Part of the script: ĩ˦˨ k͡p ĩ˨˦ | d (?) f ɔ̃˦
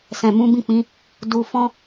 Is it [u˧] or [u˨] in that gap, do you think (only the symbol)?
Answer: u˧